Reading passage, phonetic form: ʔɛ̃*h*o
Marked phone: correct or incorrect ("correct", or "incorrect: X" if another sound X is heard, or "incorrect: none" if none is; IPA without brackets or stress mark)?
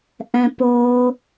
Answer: incorrect: p